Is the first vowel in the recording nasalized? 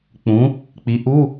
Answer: yes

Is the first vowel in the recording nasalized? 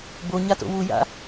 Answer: no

